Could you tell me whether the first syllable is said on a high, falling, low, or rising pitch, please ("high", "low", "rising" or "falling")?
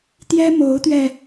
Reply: high